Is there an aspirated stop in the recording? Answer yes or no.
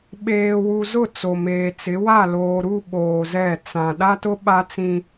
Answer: no